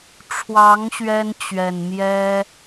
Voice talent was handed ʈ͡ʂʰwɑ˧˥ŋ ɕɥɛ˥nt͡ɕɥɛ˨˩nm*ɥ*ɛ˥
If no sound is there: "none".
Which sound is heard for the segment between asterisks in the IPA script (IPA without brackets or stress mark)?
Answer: j